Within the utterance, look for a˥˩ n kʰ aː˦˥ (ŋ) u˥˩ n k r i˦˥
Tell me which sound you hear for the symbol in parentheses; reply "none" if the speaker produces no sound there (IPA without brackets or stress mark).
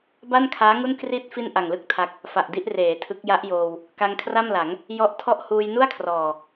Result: ŋ